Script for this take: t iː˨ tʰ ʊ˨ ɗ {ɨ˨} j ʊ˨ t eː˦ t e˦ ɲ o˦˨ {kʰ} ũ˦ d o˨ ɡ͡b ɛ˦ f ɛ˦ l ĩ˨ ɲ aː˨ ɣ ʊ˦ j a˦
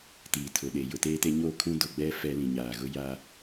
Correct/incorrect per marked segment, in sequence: incorrect, correct

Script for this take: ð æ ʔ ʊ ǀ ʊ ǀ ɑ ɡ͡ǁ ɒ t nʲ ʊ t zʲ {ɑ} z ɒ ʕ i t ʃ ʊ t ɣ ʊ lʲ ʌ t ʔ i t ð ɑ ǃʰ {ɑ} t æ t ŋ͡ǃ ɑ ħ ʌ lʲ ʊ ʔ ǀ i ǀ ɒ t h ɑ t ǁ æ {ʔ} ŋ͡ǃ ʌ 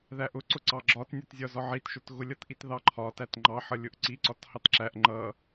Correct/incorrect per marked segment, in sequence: incorrect, incorrect, correct

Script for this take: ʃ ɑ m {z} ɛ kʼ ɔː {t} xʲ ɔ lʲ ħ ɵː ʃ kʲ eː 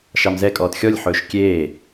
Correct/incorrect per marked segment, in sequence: correct, correct

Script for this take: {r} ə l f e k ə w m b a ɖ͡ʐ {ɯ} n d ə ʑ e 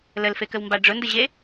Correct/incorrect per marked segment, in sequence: incorrect, incorrect

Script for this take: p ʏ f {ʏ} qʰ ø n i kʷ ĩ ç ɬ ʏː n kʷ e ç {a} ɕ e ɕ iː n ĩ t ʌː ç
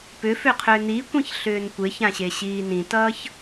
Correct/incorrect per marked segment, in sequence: correct, incorrect

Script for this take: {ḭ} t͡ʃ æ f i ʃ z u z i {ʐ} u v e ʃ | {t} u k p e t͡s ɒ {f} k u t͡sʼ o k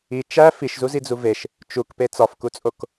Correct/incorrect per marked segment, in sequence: incorrect, incorrect, incorrect, correct

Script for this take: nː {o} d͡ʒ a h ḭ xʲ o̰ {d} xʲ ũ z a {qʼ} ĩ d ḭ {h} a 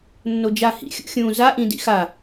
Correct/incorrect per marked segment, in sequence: correct, incorrect, incorrect, incorrect

